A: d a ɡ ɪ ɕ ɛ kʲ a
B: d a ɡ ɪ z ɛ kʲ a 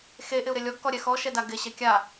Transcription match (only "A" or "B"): A